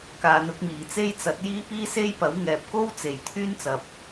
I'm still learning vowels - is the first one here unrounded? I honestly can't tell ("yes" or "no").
yes